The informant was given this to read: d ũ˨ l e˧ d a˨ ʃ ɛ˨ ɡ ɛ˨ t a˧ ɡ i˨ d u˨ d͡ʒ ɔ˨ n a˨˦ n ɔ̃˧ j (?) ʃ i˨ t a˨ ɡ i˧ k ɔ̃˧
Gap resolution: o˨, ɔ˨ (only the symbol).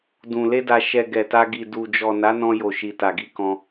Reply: o˨